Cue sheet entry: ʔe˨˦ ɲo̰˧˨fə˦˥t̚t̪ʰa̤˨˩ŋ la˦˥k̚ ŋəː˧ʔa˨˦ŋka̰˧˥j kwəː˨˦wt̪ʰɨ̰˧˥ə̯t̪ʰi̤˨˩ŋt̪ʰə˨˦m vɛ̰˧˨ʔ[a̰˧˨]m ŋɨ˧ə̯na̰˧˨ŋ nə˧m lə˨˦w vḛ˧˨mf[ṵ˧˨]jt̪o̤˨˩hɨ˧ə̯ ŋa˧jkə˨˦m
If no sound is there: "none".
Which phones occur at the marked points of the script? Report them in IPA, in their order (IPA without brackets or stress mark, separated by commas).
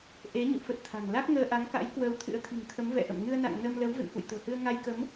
ə̰˧˨, ṵ˧˨